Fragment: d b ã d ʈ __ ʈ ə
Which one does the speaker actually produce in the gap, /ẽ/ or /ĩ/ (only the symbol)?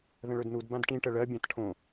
ĩ